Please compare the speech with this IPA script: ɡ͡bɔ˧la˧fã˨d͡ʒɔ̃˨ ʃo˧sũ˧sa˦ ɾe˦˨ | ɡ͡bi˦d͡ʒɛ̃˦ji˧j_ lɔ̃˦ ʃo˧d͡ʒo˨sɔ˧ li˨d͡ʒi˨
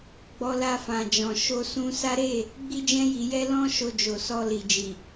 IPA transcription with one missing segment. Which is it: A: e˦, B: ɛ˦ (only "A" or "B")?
B